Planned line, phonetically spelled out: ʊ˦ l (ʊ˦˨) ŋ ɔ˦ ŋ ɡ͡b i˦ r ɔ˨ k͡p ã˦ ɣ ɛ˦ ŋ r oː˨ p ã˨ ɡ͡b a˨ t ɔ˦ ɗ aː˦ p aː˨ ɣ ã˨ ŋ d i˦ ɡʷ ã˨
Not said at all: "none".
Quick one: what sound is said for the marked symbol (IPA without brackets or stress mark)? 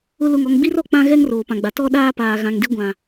ʊ˦˨